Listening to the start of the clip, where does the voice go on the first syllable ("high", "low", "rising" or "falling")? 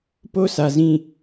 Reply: falling